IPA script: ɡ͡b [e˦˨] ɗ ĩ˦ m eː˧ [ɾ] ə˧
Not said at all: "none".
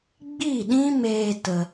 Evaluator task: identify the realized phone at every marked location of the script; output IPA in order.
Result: i˦˨, t

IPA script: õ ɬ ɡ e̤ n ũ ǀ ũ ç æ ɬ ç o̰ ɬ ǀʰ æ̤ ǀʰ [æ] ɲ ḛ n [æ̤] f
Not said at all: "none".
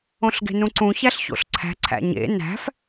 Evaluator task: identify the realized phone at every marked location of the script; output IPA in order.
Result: æ̰, æ̤

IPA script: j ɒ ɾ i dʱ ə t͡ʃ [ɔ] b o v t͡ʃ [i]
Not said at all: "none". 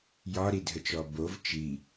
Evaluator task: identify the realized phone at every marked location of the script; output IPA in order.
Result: ɔ, i

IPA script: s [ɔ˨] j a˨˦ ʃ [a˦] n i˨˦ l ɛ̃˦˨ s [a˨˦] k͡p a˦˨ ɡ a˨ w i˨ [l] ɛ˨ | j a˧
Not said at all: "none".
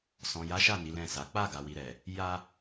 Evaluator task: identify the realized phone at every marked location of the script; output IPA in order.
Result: ɔ̃˨, a˦˨, a˨˦, ɾ

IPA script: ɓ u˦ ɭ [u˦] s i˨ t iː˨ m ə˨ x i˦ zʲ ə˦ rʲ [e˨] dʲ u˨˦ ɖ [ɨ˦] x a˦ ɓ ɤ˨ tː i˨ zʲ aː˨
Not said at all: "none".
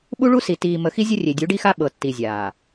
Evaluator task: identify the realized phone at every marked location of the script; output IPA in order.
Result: u˦, e˨, i˦

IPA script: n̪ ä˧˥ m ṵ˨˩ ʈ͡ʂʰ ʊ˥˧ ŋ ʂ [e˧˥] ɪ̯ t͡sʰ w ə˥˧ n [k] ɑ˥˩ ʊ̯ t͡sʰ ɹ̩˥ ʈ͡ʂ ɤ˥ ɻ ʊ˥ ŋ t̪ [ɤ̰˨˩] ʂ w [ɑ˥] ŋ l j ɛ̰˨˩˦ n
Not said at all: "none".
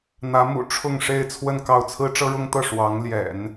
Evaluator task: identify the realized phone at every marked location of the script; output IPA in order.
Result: e˥˧, k, ɤ˥˩, ɑ˧˥

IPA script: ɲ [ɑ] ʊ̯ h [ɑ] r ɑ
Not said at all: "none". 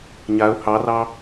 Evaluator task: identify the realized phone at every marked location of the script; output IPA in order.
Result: a, ɑ

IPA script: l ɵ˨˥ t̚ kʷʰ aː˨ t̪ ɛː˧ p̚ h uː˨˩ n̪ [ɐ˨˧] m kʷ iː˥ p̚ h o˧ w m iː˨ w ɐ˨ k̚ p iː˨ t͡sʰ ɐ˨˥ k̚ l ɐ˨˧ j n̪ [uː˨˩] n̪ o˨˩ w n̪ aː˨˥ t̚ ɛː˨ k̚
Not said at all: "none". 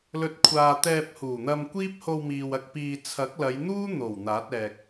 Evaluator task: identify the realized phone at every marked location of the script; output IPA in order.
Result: ɐ˧, uː˥

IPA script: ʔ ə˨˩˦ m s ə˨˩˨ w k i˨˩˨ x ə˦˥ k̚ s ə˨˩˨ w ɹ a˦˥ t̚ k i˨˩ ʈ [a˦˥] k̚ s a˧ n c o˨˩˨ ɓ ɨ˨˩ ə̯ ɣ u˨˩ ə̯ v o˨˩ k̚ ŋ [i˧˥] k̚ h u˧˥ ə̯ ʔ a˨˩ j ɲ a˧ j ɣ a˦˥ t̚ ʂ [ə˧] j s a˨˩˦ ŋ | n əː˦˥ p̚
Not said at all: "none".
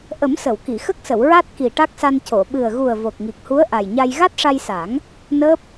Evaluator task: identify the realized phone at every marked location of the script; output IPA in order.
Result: a˦˥, i˨˩, a˧

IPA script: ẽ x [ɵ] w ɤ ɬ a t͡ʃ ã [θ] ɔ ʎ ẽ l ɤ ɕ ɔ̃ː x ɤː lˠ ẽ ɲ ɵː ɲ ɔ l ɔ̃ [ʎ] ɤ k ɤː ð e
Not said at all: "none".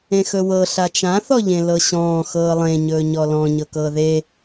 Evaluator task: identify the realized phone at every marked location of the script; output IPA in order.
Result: ɵ, θ, ɲ

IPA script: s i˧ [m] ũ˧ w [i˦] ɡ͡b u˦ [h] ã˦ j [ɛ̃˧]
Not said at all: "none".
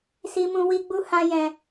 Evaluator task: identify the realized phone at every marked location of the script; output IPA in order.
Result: m, i˦, h, ɛ̃˧

